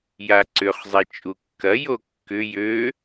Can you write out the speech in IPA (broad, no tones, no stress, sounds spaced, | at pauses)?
j a ǀ ʏ χ zˤ ɛ t͡ʃʼ u kː ɐ j o kː ʏ j ø